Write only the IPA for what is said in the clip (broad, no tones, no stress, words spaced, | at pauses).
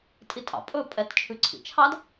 tʼitʼɑ̰ pʼɵpʼɛt t͡ʃʰʉǀʰḭt͡ʃʰɑd